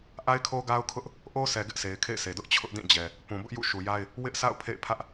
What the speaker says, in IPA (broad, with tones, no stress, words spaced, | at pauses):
ʔa˦ɪ̯kʰo˦ɡa˦ʊ̯kʰʊ˦ʔ | ʔo˦ sʰɛ˨ ɡɪ˦ʔsʰe˨ɪ̯kʰḛ˦˨ɪ̯ sʰe˨dʊ˦ʔ t͡ɕʰʊ˦ʔdĩ˦˨ d͡ʑɛ˨ | pũ˨bʊ˦ʔ jṵ˦˨ʃu˨ja˦ɪ̯ | wɪ˦ʔsa̰˦˨ʊ̯ pʰḛ˦˨ɪ̯pʰä˦ʔ